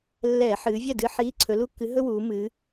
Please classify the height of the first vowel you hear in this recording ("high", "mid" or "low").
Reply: mid